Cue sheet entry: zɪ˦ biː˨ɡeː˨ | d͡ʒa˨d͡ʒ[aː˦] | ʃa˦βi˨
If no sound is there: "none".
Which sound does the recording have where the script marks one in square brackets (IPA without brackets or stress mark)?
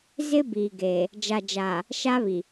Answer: aː˨